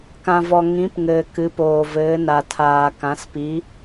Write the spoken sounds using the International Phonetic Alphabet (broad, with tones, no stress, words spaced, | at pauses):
kã˨vɔ˨ ŋĩ˨˥pŋɘː˨ kɨ˨˥poː˨ vɘː˨˥na˨tʰaː˨ kã˨˥spi˨˥